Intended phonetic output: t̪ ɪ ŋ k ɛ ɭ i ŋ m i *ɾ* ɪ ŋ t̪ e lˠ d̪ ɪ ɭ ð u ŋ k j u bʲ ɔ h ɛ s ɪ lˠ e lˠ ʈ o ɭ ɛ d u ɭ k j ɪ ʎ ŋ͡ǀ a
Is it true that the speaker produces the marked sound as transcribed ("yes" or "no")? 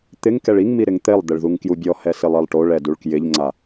yes